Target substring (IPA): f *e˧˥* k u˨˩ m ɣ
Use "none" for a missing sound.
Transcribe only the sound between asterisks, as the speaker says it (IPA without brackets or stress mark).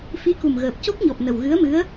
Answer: i˧˥